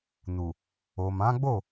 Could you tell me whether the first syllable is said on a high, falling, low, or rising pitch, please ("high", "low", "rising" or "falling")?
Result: low